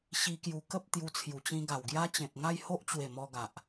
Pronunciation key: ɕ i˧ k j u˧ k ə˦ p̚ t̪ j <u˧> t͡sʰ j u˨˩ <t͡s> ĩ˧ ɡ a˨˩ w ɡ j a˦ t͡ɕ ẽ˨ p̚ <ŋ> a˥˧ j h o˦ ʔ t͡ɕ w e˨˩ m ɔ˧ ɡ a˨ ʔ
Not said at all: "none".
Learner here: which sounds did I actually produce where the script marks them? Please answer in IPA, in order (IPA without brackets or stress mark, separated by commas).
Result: u˧, t͡ɕ, ŋ